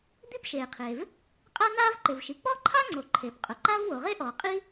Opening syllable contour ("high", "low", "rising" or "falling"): high